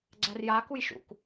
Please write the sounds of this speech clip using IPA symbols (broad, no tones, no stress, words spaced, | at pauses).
ɡ͡ǀærjakuj ʃṵk